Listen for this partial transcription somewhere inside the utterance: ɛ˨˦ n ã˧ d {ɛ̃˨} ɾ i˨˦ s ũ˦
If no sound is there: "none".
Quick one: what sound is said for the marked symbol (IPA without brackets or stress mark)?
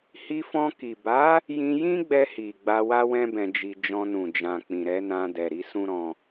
ɛ˨